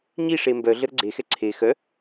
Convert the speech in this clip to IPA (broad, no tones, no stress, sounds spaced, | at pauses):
ɲ i ʂ e m b œ ɮ ə ɾ ə ɡ͡ǀ e x ɛ ǀʰ e x œ